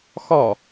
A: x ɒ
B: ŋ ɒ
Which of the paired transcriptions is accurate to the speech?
A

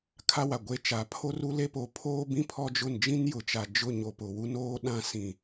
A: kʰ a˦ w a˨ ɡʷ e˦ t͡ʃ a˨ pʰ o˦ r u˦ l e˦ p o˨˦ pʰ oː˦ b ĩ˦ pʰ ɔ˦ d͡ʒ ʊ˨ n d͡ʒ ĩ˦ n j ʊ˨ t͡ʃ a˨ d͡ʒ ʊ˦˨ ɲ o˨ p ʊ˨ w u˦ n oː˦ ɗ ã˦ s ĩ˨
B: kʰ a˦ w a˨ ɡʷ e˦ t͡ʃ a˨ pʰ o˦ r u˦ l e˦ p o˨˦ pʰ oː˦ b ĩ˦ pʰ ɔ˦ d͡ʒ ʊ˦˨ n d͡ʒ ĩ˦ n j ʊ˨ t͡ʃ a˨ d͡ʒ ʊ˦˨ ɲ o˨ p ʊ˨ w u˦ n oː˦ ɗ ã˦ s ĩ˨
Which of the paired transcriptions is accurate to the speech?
B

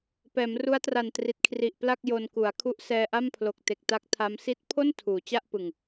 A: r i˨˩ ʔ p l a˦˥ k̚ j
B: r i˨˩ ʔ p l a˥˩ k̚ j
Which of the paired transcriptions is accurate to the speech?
B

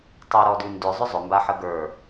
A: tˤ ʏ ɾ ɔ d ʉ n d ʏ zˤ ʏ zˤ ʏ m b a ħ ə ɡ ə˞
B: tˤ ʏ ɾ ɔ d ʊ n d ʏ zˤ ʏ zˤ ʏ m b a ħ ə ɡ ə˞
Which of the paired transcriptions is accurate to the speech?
A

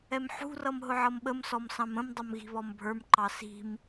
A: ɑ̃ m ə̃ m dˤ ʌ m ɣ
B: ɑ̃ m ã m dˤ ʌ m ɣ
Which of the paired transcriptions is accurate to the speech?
A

